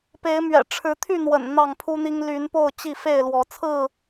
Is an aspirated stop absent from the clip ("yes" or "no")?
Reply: no